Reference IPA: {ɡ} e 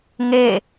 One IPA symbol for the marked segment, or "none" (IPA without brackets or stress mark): ŋ